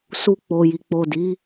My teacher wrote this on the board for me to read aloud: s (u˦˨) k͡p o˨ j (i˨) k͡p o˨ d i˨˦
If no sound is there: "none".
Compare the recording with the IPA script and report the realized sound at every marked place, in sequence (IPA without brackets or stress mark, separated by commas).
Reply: u˧, i˨